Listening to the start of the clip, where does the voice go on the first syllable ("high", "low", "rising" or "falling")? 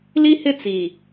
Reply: high